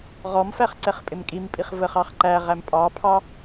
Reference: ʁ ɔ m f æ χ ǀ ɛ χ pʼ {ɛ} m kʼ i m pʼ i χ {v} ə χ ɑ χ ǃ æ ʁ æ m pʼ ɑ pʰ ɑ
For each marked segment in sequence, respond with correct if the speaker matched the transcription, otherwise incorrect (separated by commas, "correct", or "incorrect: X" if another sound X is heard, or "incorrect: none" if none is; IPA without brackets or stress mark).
incorrect: ɪ, correct